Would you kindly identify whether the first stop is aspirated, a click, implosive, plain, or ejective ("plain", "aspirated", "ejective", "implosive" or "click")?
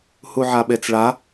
implosive